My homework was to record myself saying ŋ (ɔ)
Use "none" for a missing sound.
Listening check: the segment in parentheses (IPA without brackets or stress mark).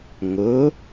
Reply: ʊ